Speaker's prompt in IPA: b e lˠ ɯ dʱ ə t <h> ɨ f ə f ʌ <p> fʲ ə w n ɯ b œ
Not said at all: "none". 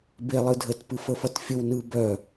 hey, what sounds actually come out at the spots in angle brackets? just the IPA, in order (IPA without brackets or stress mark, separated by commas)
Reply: p, t